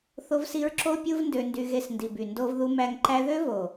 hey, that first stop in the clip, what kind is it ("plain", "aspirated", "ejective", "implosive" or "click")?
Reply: click